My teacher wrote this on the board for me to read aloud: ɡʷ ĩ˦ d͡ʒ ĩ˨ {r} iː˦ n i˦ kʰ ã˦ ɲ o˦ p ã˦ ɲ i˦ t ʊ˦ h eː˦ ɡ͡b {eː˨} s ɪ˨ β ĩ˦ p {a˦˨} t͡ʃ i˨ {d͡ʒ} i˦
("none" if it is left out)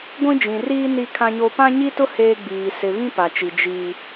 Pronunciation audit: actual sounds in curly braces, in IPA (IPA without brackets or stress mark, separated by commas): r, iː˨, a˨, d͡ʒ